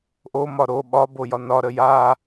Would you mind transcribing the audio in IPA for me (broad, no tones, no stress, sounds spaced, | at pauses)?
ʔ o m ɒ ɾ o ɓ ɒ b o j ɒ n ɒ ɾ ə j a